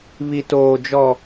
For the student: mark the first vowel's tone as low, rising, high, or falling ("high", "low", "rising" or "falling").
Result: low